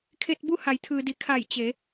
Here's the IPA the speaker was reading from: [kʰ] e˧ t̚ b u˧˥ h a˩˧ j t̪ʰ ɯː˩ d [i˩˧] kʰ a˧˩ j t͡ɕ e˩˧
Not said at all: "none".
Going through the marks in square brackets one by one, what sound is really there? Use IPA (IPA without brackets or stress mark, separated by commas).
kʰ, i˩